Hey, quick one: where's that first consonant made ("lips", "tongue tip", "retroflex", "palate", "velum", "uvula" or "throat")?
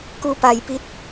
velum